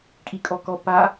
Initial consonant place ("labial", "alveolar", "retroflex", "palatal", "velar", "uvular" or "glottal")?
velar